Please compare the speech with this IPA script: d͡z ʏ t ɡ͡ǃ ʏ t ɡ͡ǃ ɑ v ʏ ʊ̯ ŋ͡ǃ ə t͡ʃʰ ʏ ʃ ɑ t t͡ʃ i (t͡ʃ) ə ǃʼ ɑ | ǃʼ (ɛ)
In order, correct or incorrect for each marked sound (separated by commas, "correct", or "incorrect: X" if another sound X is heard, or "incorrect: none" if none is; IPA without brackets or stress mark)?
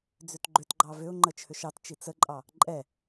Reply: incorrect: t͡s, correct